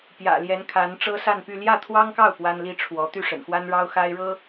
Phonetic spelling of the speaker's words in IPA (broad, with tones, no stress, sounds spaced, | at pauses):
p j ä̰˨˩ l j ɛ˧˥ n kʰ a˧˥ n ʈ͡ʂ ɤ˥ s a˥˧ n p y˥˧ l j ä˥˩ t̪ʰ w ɑ˥ ŋ k ɑ˥˩ ʊ̯ p w a˥ n l i˥ ʈ͡ʂʰ w ɔ˧˥ t̪ y˥˩ ʂ ə̰˨˩ n x w a˥ n ɻ ɑ˥ ʊ̯ x a˥ ɪ̯ ɻ ɤ˥